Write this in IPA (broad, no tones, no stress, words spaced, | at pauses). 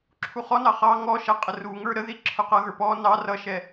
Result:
ǁʰuχɔnɑ χɑ ŋɔʃɛ qʼəruŋə˞ ɾəði ǁʰʊqʌɣə˞ pɔ nɑ rʌʃɛ